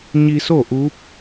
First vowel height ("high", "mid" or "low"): high